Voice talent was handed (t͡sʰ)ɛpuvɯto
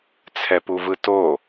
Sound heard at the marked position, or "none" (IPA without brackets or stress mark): t͡sʰ